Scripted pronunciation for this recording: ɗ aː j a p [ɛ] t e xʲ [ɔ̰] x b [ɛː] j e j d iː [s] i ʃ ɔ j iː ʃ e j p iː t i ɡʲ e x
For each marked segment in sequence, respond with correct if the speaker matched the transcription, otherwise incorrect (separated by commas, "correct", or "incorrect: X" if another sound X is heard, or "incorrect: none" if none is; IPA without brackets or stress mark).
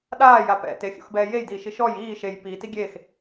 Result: incorrect: ɛ̰, incorrect: o̰, correct, incorrect: ʃ